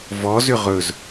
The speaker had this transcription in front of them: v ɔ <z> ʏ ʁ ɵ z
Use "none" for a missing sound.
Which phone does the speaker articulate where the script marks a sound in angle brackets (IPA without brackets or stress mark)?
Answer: z